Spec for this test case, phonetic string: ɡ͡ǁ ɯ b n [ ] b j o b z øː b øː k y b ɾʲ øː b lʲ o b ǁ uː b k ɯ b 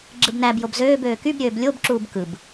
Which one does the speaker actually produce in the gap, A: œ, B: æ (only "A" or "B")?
B